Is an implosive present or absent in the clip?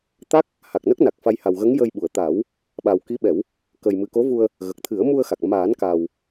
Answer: present